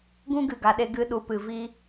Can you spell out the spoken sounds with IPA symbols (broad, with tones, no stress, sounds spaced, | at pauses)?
ɡ ũ˦ ɡ ɨ˨ ɡ a˨ ɗ e˧ ɡ ɨ˧ ɗ u˨ p ɨ˨ v iː˦